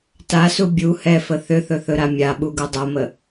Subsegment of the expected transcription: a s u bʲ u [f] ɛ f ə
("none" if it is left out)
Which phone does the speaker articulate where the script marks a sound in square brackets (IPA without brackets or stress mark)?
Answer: h